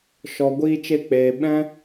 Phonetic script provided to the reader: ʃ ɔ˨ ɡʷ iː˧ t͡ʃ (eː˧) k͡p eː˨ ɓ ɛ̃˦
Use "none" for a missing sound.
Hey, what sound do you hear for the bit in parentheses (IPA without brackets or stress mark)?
e˧